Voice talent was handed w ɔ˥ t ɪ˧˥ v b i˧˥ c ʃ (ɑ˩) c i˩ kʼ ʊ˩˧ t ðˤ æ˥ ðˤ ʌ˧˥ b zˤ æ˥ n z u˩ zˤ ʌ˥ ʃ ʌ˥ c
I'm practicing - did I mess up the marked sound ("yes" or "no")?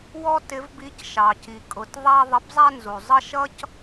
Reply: no